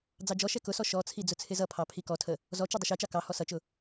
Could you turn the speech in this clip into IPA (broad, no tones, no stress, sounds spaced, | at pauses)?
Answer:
d͡z ɑ d͡ʒ ɔ ʃ ɛ k ʊ s ɔ ʃ ɔ t͡sʰ i d͡z ʊ t͡sʰ ɪ z ʌ pʰ ɑ pʰ i k ɔ tʰ ə | z ɔ t͡ʃ i dˤ ʊ ʃ ɛ t͡ʃ ɑ k ɑ h ɔ s ʌ t͡ʃ ʊ